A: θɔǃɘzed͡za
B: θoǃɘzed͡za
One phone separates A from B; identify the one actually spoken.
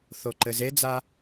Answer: B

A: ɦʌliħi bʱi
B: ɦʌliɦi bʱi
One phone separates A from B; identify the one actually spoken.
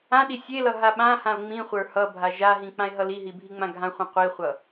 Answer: B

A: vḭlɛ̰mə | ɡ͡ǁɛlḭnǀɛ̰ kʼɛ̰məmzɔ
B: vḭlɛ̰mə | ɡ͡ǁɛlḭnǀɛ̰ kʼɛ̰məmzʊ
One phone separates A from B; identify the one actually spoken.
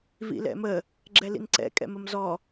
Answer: A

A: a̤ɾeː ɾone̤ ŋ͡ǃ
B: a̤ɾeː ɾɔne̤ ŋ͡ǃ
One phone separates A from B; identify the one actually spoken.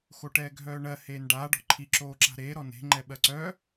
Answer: B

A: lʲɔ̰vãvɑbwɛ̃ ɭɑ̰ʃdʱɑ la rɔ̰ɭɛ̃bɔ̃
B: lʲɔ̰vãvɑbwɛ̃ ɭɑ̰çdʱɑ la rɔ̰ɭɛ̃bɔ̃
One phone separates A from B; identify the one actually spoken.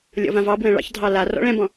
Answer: B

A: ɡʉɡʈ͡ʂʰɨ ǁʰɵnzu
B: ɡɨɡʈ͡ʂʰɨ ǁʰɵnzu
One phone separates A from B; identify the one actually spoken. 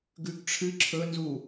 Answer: A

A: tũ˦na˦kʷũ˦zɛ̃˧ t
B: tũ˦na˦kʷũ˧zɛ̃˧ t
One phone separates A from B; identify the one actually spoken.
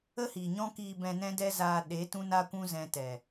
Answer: A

